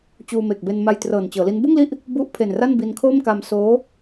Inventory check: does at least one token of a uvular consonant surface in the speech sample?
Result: no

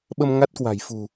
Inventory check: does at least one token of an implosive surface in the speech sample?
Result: yes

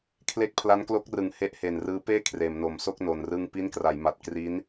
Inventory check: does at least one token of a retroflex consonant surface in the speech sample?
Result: no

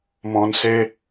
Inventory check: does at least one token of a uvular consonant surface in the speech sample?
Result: no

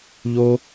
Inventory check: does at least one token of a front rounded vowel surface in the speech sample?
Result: no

